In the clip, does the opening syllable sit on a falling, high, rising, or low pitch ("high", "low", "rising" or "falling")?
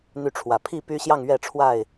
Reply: falling